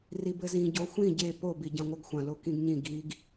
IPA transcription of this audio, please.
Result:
r i b ɘ z ĩ ɟ o xʷ ĩ ɟ e p o b i ɟ ɐ̃ ŋʷ ɐ ɡ xʷ ɐ̃ l o k ĩ ɡ ɲ ĩ ɡ i ɡ

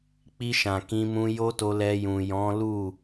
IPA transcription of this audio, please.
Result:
k͡p i˧ ʃ ã˨ k ĩ˧ m ũ˧ j o˦ t o˧ l ɛ˧ j ũ˨ j ɔ̃˨˦ l u˦˨

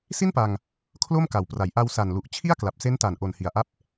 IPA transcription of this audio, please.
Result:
s i˥˩ n p a˧ ŋ | kʰ l o˥˩ m k a˨˩ w p r a˩˦ j ʔ a˧ w s a˨˩ n l u˨˩ ʔ t͡ɕʰ i˥˩ a̯ k l a˨˩ p̚ s e˦˥ n t a˨˩ n ʔ o˨˩ n h i˨˩ a̯ ʔ a˦˥ p̚

